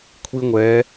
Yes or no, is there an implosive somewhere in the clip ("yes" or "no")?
no